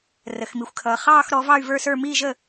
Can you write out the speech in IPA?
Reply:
rə˩xmi˩xʷkʰʌː˩ χɑː˦˨xɾɔ˩˧ vɑ˦˨y̯və˞˦˨sə˞˦˨ miː˦˨ʒəː˦˨

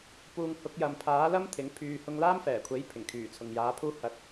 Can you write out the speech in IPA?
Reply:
puː˧ŋ hʊ˨˥k̚jɐ˨mpʰaː˨˥lɐ˥m t̪ʰɪ˨˥ŋpʰyː˧ hʊ˧ŋlaː˥mfɛː˨˩kʷʰe˨˥j pʰɪ˨˩ŋkʰyː˨˩t͡sʰʊ˨ŋ jaː˨˥pʰuː˥ hɐ˧t̚

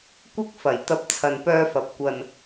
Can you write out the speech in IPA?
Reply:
kʷɪ˧k̚ fɐ˨˩j t̪ɐ˧p̚t͡sʰɐ˨npœː˧fɐ˨p̚ kʷɐ˨n

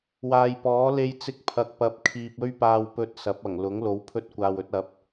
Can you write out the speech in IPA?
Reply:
waː˨jpɔː˨˥ le˧jt͡sɪ˧k̚ pʰɐ˨k̚pɐ˨˥p̚kʰiː˨p̚ ɵ˥ɥpaː˧wpɵ˧t̚ sɐ˨˥p̚ɐ˨˩ŋ lʊ˨˥ŋ lo˨˥wpʰɵ˧t̚ kʷaː˨wɵ˧t̚ɐ˨˥p̚

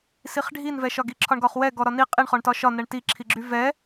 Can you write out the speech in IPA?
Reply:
siχɖʱinvɛʃɒ ɡiǁʰɒɳɡɒχwɛ ɡɔɾɒni qʼiɳχɔɳtɒ ʃɒnɛɳ tiǁʰiɡ͡ǁy vɛ

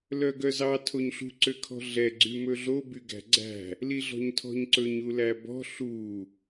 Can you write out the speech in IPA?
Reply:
lœɡœzɑ tʰoɲɬṳǀøkʰɔ̤ ɮɛɡ͡ǀy mɵɮo byɡæ̤ɡ͡ǀæ̤ | liɮɔ̤ɲtʰɔ̤ɲǀɵɲ ulæbɔ̤ ɬu

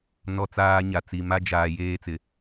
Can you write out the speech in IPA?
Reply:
nɔ˦t͡saː˦ɲa˨ t͡si˨ma˦d͡ʒaː˨ jeː˦t͡sɪ˨

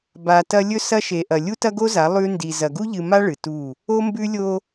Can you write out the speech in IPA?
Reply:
ba˨tɐ˦ lʲɵ˦sɐ˦ ʃe˨ʔɐ˨ lʲu˦tɐ˦ɡo˦za˨˦ lˠʉ˦ ndi˨ zɐ˨ɡu˦ʎɨ˨ma˦ ɭɨ˨tu˦˨ | o˦mbʉ˦lʲo˦

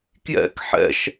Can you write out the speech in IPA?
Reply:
kjɛ̰k ħɛ̰ʃ

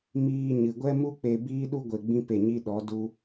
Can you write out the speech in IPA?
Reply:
miː˧ɲɨ˨ ɡʷɛ˦mu˦ k͡pe˧biː˦ɗu˦ ɡʷe˧ɡ͡bĩ˦pe˦˨ɲi˦ ɗɔ˨˦ du˦

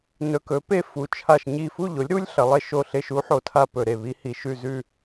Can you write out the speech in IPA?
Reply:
nɵ˧kɵ˨˥pe˥˧ fu˧t͡ʃʰa˥˧ʃɲi˥˧ fu˥˧ʎo˨˥lʲɾu˦˥lʲ ɬɐ˨˥lˠe˥˧ʃo˥˧ɬe˥˧ʃ u˦˥ħo˧ tʰa˥˧pɵ˧ɾe˧ βi˦˥hi˧ʃʉ˥˧ zʉ˥˧

